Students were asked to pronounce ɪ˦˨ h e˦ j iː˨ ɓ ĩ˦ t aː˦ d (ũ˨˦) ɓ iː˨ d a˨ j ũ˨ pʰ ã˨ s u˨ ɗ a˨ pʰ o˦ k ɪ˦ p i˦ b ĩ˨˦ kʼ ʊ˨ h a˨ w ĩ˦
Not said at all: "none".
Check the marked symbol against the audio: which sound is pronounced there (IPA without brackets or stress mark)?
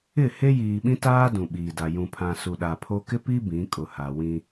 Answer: ũ˨